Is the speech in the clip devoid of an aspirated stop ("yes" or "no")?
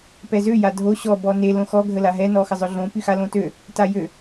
yes